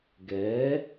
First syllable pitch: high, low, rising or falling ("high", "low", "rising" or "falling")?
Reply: rising